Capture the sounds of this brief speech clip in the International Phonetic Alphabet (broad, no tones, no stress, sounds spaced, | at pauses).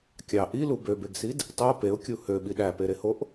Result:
kʲ ɑ ʔ i l u b ø b e ɡ s i d | tˤ o p e ʊ̯ kʲ u h ø ɓ i ɗ æ p e ɾ e h o ʔ